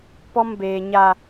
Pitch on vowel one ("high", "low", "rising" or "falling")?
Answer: high